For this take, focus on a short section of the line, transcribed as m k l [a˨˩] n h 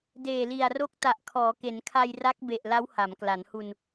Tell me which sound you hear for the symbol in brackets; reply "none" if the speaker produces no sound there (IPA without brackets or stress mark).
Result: a˩˦